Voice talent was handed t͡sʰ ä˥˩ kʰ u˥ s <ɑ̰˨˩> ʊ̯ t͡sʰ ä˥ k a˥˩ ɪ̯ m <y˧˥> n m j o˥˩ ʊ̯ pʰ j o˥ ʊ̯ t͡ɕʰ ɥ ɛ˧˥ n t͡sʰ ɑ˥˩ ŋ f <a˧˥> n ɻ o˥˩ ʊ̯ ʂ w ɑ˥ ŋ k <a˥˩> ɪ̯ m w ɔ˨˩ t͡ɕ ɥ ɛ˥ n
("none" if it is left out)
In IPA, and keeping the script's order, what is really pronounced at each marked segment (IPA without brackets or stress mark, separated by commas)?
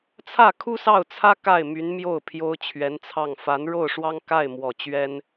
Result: ɑ˥˩, y˧˥, a˧˥, a˥˩